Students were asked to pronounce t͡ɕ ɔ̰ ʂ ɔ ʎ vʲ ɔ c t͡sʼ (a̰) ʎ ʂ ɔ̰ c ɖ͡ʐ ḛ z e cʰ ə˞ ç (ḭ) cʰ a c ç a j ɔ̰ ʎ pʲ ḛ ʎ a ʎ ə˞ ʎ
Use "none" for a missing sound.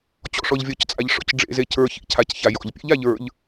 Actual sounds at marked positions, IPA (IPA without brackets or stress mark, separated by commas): a, ḭ